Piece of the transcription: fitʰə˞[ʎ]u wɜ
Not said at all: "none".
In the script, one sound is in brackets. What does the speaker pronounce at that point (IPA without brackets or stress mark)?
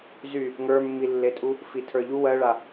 ʎ